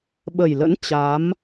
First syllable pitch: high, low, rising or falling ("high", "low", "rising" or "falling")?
low